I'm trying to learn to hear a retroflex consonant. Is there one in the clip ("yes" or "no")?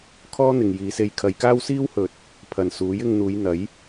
no